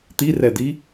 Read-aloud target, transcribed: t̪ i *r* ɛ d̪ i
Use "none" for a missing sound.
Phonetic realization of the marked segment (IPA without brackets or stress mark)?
r